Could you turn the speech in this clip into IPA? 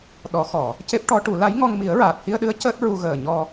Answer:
ɗɔ˨˩˦xɔ˨˩˨ | ce˦˥p̚ʈɔ˧˥ʈu˨˩˦ la˧˥jŋɔ˧ŋ mi˨˩˦ə̯ɹaː˨˩t̚hi˧ə̯ɗɨ˧˥ə̯ cəː˦˥t̚ ɹu˧ɣəː˨˩ɲɔ˧

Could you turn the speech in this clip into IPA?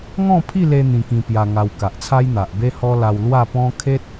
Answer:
ŋɔ̃˥˧pʰi˥˧le˧ n̪ĩ˧kĩ˧pja˧ŋa˧w ka˨ʔt͡sʰa˦j n̪a˨ʔbe˦hɔ˦la˧w lwa˥˧pɔ̃˦ kʰe˦t̚

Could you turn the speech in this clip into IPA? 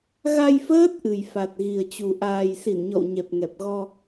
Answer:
ɣa˧jfəː˦˥t̚ ʔɨ˨˩jfa˨˩t̚ɣi˨˩ə̯t͡ɕu˨˩ ʔaː˨˩jsi˧˩nɲɔ̰˧˨w ɲɛ˨˩p̚ŋɛ˨˩p̚ɣɔ˧

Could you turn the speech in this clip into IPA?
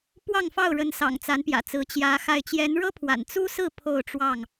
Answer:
pwɑ˥˨ŋfɑ˥˨ʊ̯ɻə˨˦n sɑ̰˨˩ŋt͡sa˨˦npjä̰˨˩t͡sɹ̩˨˦ t͡ɕjä˨˦xa˥˨ɪ̯ t͡ɕjɛ˨˦nɻɤ˦pʰwa̰˨˩n t͡su˦sɹ̩˥˨ pʰo˥˨ʊ̯ʈ͡ʂwɑ˥˨ŋ

